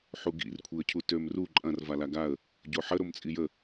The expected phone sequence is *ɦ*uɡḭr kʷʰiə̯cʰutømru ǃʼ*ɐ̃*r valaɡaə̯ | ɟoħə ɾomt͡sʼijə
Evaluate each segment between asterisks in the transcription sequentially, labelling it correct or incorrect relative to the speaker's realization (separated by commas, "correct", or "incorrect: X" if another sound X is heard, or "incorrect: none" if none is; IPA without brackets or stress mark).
incorrect: ħ, correct